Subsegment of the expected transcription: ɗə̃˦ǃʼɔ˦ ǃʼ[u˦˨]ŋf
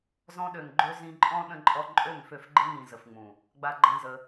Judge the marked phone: incorrect: ø˦˨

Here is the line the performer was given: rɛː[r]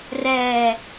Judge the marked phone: incorrect: none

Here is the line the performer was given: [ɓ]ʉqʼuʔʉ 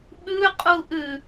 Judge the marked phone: correct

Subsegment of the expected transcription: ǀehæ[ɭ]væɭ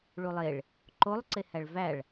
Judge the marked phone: correct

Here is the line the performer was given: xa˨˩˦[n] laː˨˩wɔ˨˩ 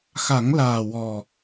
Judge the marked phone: incorrect: ŋ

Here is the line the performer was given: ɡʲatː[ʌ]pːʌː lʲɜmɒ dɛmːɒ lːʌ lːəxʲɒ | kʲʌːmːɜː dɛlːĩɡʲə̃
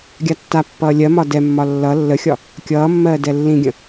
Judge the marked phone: incorrect: a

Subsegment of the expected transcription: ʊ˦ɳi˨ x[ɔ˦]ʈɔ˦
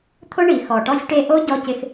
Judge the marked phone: incorrect: ɔ˨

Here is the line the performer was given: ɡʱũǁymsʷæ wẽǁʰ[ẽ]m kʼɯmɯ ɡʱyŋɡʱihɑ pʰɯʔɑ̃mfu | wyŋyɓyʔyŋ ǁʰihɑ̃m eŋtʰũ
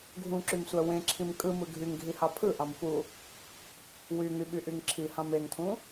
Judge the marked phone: incorrect: ĩ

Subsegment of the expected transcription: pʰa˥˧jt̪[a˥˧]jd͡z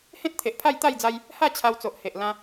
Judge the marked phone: correct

